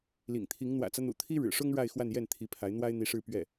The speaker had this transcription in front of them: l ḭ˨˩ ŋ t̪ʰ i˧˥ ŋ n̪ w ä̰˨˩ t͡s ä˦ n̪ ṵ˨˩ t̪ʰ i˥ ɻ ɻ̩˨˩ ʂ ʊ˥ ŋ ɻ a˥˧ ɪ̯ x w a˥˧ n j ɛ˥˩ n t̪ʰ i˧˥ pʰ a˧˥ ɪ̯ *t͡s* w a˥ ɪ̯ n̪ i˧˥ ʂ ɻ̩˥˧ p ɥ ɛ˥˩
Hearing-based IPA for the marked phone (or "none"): n̪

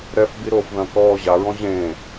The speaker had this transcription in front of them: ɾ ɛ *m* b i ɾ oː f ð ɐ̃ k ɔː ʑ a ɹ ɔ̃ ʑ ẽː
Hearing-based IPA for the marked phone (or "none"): f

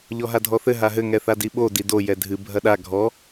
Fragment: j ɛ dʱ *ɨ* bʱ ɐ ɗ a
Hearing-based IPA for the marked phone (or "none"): ɨ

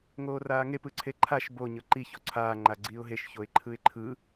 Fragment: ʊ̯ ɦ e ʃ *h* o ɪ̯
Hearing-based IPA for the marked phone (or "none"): ç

